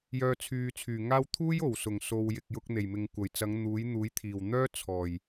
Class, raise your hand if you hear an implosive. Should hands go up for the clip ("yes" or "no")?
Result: no